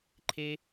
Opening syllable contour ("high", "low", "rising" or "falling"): low